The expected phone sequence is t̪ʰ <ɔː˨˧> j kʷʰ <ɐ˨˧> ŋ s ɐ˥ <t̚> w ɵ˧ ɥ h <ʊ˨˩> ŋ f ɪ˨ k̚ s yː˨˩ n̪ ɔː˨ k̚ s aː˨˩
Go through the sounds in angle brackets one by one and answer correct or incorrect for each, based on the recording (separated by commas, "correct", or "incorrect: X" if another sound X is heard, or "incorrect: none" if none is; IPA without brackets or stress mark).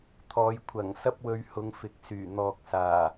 correct, incorrect: ɐ˨˩, incorrect: p̚, incorrect: ʊ˨˧